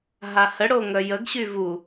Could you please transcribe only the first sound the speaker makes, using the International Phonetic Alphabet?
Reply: ɦ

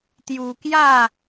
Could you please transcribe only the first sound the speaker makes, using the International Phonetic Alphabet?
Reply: t̪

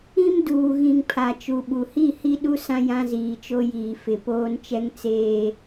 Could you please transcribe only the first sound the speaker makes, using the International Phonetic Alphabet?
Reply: ĩ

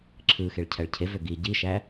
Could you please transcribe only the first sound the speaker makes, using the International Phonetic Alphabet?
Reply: ǁʰ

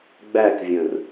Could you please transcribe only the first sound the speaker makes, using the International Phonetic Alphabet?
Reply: ɡ͡b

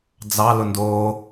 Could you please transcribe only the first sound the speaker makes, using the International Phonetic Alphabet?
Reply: d͡z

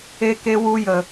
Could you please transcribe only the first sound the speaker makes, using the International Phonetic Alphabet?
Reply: e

